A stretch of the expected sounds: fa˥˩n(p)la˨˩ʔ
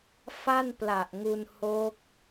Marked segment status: correct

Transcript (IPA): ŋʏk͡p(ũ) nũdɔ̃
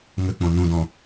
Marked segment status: incorrect: õ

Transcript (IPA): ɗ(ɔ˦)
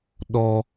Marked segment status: correct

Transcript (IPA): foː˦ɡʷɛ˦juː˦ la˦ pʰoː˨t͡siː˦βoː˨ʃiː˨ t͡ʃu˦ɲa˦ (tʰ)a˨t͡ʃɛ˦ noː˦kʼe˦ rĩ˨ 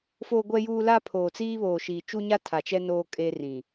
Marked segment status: correct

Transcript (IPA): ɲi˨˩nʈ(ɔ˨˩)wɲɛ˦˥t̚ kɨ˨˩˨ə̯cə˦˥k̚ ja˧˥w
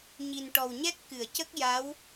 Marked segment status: correct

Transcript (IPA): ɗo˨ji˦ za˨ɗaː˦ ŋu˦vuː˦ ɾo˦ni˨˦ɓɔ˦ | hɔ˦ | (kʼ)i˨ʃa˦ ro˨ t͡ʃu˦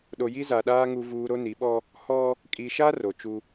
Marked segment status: correct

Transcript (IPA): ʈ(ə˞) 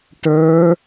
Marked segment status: correct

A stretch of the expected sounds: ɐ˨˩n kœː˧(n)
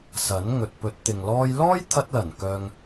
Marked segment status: incorrect: ŋ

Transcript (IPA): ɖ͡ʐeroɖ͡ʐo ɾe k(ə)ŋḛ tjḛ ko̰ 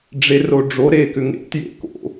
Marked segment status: incorrect: ʏ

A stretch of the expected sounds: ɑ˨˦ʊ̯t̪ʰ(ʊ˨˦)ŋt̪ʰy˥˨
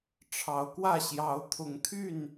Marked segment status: correct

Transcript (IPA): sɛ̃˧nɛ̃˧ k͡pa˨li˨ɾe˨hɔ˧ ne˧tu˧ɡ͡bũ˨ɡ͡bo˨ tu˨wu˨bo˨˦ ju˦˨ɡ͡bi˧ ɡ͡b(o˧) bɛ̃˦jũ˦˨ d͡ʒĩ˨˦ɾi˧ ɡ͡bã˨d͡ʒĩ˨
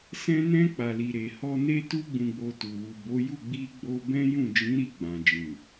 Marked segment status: correct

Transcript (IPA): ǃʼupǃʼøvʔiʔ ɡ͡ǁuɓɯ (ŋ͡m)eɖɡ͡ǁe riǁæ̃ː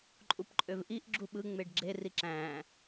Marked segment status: correct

